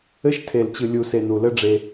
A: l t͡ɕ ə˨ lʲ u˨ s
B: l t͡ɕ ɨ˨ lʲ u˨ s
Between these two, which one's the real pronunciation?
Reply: B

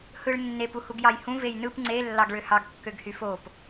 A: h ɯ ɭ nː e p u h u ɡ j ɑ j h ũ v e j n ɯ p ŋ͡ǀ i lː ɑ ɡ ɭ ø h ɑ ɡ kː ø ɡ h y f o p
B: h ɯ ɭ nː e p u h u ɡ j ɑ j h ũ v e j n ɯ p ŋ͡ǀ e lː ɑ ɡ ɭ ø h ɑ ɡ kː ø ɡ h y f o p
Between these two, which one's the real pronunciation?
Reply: B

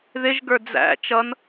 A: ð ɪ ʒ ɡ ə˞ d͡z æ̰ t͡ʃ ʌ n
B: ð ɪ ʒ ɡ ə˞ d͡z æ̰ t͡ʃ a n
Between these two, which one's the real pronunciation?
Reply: A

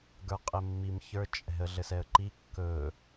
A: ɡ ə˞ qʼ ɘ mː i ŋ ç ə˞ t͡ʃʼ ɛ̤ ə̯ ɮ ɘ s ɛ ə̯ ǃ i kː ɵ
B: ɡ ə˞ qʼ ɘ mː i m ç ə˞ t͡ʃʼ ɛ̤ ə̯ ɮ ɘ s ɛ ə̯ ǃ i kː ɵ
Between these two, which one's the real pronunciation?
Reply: B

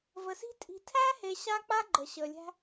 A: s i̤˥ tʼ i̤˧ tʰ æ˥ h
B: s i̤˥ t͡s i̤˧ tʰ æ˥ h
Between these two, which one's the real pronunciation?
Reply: A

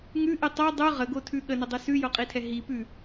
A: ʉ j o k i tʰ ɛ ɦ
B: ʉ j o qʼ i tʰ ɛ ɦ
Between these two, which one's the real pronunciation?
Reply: B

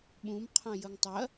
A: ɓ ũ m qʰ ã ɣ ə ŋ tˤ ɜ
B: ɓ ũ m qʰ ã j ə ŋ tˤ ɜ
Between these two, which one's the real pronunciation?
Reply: B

